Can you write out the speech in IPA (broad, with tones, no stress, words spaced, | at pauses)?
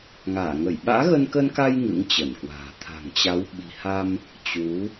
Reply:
ŋaː˧˩ŋə˧˩j ɓa̰ː˧˥ɣə˧nkə˧nka˧j ŋɨ̰˧˥ŋt͡ɕə˧˩nkwa̤ː˨˩ t̪ʰa̤˨˩ŋt͡ɕa˨˦w ɓi̤˨˩ha˧m | t͡ɕu˨˦